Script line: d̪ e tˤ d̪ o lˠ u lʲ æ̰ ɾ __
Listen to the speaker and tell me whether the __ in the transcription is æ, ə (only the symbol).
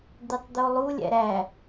æ